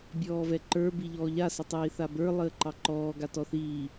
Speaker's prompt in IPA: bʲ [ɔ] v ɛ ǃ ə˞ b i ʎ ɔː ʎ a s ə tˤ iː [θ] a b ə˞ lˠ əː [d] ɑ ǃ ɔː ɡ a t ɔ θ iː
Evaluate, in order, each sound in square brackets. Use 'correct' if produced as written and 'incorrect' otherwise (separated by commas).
incorrect, correct, incorrect